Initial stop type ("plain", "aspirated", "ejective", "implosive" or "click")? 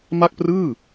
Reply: plain